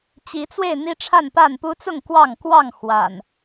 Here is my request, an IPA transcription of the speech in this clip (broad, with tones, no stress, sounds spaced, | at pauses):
t͡ɕ i˨˦ t͡s w e˥˨ ɪ̯ n̪ i˦ ʈ͡ʂʰ a˥˨ n p a˥˨ n p u˦ t͡s ʊ˥˨ ŋ k w ɑ˥˨ ŋ k w ɑ˥˨ ŋ x w a̰˨˩ n